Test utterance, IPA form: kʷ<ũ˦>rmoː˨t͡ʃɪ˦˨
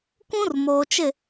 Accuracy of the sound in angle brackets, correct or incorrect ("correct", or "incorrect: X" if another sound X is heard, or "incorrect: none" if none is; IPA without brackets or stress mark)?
correct